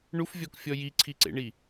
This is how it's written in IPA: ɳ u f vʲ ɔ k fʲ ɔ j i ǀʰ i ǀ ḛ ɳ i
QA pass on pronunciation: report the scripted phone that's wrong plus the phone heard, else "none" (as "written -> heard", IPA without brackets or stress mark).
none